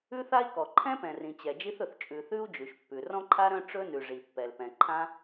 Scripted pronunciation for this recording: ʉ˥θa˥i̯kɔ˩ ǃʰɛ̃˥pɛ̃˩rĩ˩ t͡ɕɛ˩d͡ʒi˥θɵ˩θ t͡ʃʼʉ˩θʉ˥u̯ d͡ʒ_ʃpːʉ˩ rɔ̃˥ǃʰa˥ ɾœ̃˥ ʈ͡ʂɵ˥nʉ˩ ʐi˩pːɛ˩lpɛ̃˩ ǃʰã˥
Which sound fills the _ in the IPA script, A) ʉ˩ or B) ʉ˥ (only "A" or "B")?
A